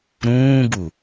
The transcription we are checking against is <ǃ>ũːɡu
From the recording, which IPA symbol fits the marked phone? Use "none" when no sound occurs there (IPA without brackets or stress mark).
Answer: ɾ